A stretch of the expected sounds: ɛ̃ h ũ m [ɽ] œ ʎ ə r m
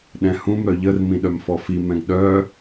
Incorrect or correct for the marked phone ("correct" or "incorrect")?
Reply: incorrect